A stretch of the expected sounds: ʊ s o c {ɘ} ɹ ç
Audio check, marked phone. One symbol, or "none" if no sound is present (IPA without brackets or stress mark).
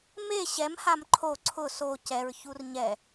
ɛ